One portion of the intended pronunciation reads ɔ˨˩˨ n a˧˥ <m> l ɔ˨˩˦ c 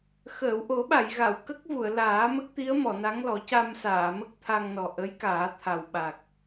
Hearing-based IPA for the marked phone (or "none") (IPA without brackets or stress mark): ŋ